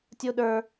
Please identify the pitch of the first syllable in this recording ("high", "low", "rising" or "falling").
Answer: high